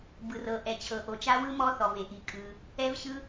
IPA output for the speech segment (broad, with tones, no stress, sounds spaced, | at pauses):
b ɯ˩ r ɤ˩ ʔ ɛ˩ t͡ɕʰ ɤ˩ ʔ o˩ t͡ʃ a˦˥ w ɯ˦˥ m ɔ˦˥ θ ɔ˩ v e˩ ʔ i˩ kʼ ɯ˩ | ɛ˦˥ v ɕ ɯ˦˥